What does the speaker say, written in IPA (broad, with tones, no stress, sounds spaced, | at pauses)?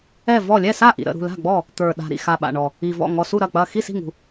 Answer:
ɛ˥˩ v ɔ˥˩ lʲ ɛ˥˩ s a˥˩ ʔ ḭ˨˩ ɾ ə̰˥˩ ɾ ṳ˥˩ l a̤˥˩ ɡ͡b ɔ˥˩ | t̪ ə˞˨˩ ɗ a̤˨˩ ɾ ḭ˨˩ x a˨˩ ɓ a̰˨˩ ɳ ɔ˨˩ | i˨˩ v ɔ̰˥˩ ŋ ɔ˨˩ s u˥˩ ɾ ɐ˥˩ k͡p ɐ˥˩ x i˥˩ s i̤˥˩ ŋ ṳ˨˩